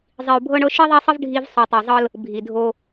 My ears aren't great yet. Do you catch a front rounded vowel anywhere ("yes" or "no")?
no